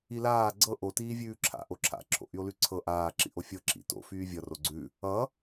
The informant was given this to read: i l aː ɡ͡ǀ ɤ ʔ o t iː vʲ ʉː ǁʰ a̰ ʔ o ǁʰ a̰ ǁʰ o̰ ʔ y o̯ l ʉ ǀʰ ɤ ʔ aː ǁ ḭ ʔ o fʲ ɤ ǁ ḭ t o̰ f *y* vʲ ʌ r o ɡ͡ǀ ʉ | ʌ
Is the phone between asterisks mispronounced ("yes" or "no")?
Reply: yes